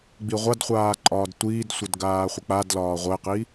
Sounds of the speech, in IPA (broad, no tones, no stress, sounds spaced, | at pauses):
ɡ͡b i ʁʷ a d χʷ aː ǃʼ ɒː d tʷ iː d sʷ ə d ɡ aː χʷ ə k͡p a d l ɒː ʁʷ ə e̯ q i